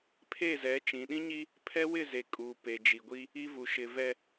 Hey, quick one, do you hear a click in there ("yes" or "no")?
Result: no